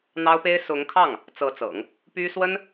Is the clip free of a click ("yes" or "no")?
yes